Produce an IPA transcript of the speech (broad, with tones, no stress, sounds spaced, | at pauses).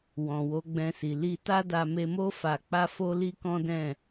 w ɔ̃˨ w o˨˦ ɡ͡b ɛ̃˧ s i˨ l i˧ t a˦ d a˧ m e˧ m o˦ f a˧ k͡p a˦ f o˦ l i˦ k ɔ̃˦ d ɛ̃˦˨